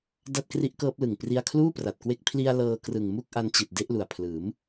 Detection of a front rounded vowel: absent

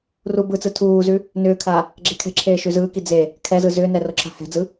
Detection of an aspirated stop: present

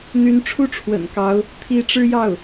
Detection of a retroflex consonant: present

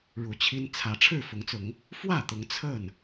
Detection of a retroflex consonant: present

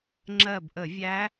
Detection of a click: present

